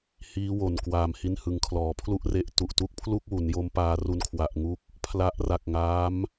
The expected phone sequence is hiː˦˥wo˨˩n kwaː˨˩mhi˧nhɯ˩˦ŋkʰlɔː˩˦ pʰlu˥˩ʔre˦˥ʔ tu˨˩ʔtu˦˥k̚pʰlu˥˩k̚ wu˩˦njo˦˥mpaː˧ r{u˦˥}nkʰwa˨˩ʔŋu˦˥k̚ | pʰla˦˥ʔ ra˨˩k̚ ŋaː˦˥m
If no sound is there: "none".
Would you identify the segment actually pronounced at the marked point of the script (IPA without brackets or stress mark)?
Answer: u˧